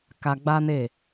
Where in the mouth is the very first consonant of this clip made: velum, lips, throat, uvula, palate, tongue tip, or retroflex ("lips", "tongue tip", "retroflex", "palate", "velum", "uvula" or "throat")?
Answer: velum